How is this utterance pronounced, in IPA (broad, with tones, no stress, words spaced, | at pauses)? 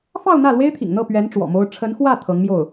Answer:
fɑ˥˧ʊ̯ n̪ä˥˩lwe˥ɪ̯t̪ʰḭ˨˩ŋn̪ɤ˥˩ pɥɛ˧˥n ʈ͡ʂwɔ̰˨˩mo˥ʊ̯ ʈ͡ʂʰə˧˥nxwä˥˩ t̪ʰɤ˧˥ŋmjo˥˩ʊ̯